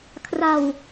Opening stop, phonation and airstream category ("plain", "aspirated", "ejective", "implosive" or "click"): aspirated